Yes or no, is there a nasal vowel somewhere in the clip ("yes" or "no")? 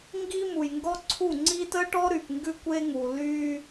no